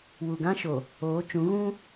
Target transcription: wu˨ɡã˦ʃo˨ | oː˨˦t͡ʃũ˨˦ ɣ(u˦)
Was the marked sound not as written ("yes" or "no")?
yes